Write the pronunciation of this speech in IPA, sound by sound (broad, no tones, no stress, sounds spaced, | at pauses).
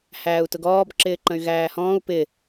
h æː u̯ t ʊ ɡ ɔː b ǁ ɪː ǃ ə̃ y̯ ɣ æː h ɔ̃ː u̯ p ɪ